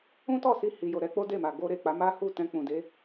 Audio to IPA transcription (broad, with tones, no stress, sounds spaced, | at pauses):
ũ˦ t ɔ˦˨ s i˧ h i˨ j o˨ ɾ ɛ˧ k͡p o˦ d e˦˨ m a˨ ɡ o˧ ɾ e˨ k͡p a˨˦ m a˦ h u˦˨ t ɛ̃˧ k͡p ũ˨ d e˨˦